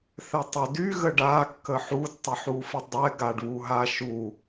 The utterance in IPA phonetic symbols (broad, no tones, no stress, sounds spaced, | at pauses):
θ ɛ tˤ ʏ d y ɣ ə ɖ a kː ə ħ u d tˤ ə ħ u f ə dˤ ɛ ɡ a ɖ β u ɦ a ʃ u